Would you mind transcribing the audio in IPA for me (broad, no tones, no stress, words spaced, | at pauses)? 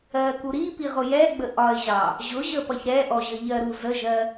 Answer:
ɜku ɾipi ʁʊjɛɡ͡bə ʔɒɪ̯ʑɑ | ʑʊʑə pʌçɾɛʔɔ ʑəʎɜɾu zəʒɜ